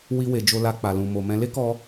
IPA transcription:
w i˧ w e˨ d͡ʒ o˧ l a˧ k͡p a˨ l ũ˨ m o˨ m ɛ̃˧ l e˦ k ɔ˧

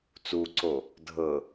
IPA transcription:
t͡s u ǀ o | dʱ ɤ

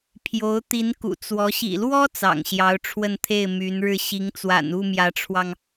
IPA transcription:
pʰ j o˧˥ ʊ̯ t̪ i˧˥ n k ṵ˨˩ t͡s w ɔ˧˥ ɕ ḭ˨˩ l w ɔ˥ t͡s ɑ̰˨˩ ŋ ɕ j ɑ˧˥ ʊ̯ ʈ͡ʂʰ w ə˥˧ n t̪ʰ e˥˩ ɪ̯ m y˧˥ n ɻ ɻ̩˥˩ ɕ i˧˥ ŋ t͡s w a̰˨˩ n u˥˩ m j ä˧˥ ʈ͡ʂʰ w ɑ˧ ŋ

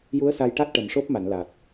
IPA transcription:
j u˧˥ ə̯ s a˧ j ʈ a˦˥ t̚ ʈ ə˨˩ m ʂ o˦˥ p̚ m a˨˩˨ n l a˨˩ t̚

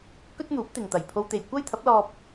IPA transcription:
k ɵ˥ t̚ n̪ uː˨˥ p̚ t̪ ɪ˨ ŋ t̪ ɐ˨˩ j pʰ o˧ w t̪ e˨ j kʷ ɐ˥ j t̪ʰ ɐ˨˥ p̚ l ɔː˧ p̚

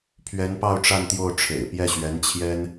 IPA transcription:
pʰ ɥ ɛ˧˥ n p ɑ˥˧ ʊ̯ ʈ͡ʂ a˥˧ n t̪ j o˥˩ ʊ̯ ʈ͡ʂʰ ḛ˨˩ ɪ̯ p j ɛ˥˩ ɕ ɥ ɛ˧˥ n t͡ɕʰ j ɛ˥ n

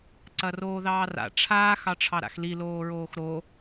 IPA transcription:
ǀ ɐ r oː ð ɑː r a̰ ʈ͡ʂʰ aː x ɑ ʈ͡ʂʰ ɑ ɾ a̰ x l i l oː ɹ oː x ɾ o

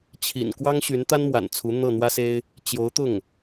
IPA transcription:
t͡ɕʰ ḭ˨˩ n k w ɑ˥ ŋ ɕ y˧˥ n t̪ a˥ n m w a̰˨˩ n t͡sʰ u˧˥ n̪ ɤ˥˩ n̪ w ä˥ s e˥ ɪ̯ | t͡ɕ j o˧˥ ʊ̯ t̪ ʊ˥˩ ŋ

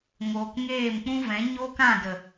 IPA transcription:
ŋ oː˨ k ŋ eː˦˨ m k͡p ũ˦ v ɛ̃˨˦ ɲ o˦ k ã˦˨ d ə˨

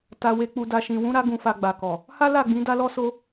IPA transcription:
t a˨ w e˨ k͡p u˨ d a˨ ʃ ĩ˨ w ũ˨˦ ɾ a˧ ɡ ũ˨ f a˨ ɡ͡b a˨ k ɔ˨ | h a˦ l a˦˨ ɡ͡b ĩ˨˦ d a˦ l ɔ˦ s o˦

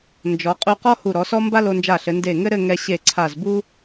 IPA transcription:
n d͡ʒ ɔ˩˧ qʼ u˧ q ɔ˥ h u˧˩ ɾ ɔ˩˧ s ɔ˥ m b a˥ l o˧ n d͡ʒ a˧˩ ɬ ɘ˩˧ n d e˧˩ ŋ ɘ˥ ɾ ɘ˥˧ ŋ ɛ˧ ɕ e˧˩ ǀʰ a˧˩ z b u˥

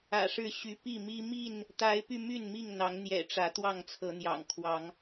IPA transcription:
ä̰˨˩ ʂ ɻ̩˥˨ ɕ y˨˦ p i˥˨ m i˦ m i˥˨ n | t̪ a˨˦ ɪ̯ p y˧ m y˥˨ n m i˥˨ ŋ n̪ ɑ˨˦ ŋ n̪ j ɛ̰˨˩ ʈ͡ʂ ä˨˦ t̪ w ɑ˥˨ ŋ t͡sʰ ɤ˨˦ n̪ j ɑ̰˨˩ ŋ kʰ w ɑ˨˦ ŋ

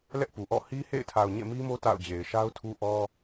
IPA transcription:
l ɛ˦ ʔ p u˨ ʔ ɔ̰˦˨ h i˦ h ḛ˦˨ ɪ̯ tʰ a˨ ʊ̯ ɲ ḛ˦˨ m i˦ m o˦ t a̰˦˨ ʊ̯ d͡ʑ e˨ ɪ̯ ʃ a˦ ʊ̯ tʰ u˦ ʔ ɔ˦

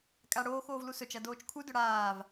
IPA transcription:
kʼ a ɽ oː x oː v l u s ɵ t͡ʃ ɐ d oː t͡ʃ kʰ u d ɵ ɽ aː v

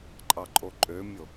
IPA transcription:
ǃʼ ɑ ǃʼ o ǃʼ ø mʲ o

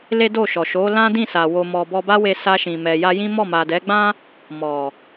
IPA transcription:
l e˦ d o˦˨ ʃ ɔ˨ ʃ o˨˦ l ã˦ d ĩ˦˨ s a˨ w o˨ m ɔ˨ b ɔ˧ b a˦ w e˧ s a˧ ʃ ĩ˨ m ɛ˨ j a˧ j ĩ˦ m ɔ˦˨ m a˨ d ɛ˨˦ ɡ͡b ã˦ | m ɔ˨

